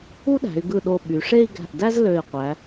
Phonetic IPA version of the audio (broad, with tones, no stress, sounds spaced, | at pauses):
u˥ ɗ æ̤˩˧ y̯ ɡ ɯ˧˩ ɗ o˧˩ ɓ y˩˧ ʂ e˥˧ i̯ ɡ æ̤˧˩ ʔ d æ˥ z l ø˧˩ i̯ qʷ æ˩˧